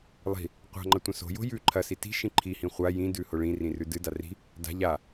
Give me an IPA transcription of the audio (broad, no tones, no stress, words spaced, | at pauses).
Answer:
lˠi̤ | qʷa̤ŋ͡ǃɐ tʷɐ̃so̤jo̤ jʉ ǃʰɐsi ti̤ʃĩ ǃʰihĩ χʷa jĩdʉ hoɭĩrĩ rʉdɨda ri̤ | da̤ ʎa